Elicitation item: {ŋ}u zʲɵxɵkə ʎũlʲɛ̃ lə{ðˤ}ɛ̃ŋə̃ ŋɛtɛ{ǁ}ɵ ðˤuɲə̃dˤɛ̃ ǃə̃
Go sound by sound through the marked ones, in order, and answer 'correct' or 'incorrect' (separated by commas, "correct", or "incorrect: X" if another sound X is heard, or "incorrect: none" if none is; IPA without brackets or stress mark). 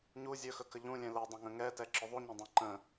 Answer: incorrect: ɲ, incorrect: dˤ, correct